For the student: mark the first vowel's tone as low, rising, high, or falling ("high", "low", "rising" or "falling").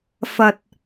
low